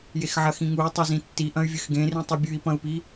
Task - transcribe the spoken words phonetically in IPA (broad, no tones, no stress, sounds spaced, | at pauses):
j e x ʕ ɐ x ĩ ŋ u y̯ tˤ ɵ z ĩ tː i ʔ ɐ̃ y̯ vʲ ɨ x ɡ ẽ r ĩ tˤ ɨ bʲ ʉ i̯ p ɐ̃ u̯ p i